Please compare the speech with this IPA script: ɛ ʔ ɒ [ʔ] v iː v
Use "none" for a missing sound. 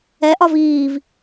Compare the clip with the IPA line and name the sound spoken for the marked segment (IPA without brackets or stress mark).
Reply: none